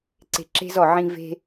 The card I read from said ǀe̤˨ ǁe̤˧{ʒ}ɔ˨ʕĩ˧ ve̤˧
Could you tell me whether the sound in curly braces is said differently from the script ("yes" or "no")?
yes